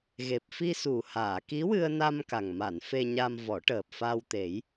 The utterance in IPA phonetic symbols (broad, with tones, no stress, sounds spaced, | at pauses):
ɣ e˨˩ p̚ f i˧ s u˨˩ h aː˨˩˨ k i˧˥ w ɨ˧ ə̯ n a˧ m k a˨˩ ŋ m a˨˩˨ n f e˧ ɲ a˧ m v ɔ˨˩˦ ʈ əː˨˩ p̚ f a˧ w t̪ e˨˩˦ j